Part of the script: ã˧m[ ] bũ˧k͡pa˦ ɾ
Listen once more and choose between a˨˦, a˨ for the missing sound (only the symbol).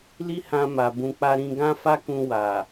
a˨